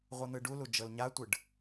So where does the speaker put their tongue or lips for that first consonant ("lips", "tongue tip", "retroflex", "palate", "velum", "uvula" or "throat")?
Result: uvula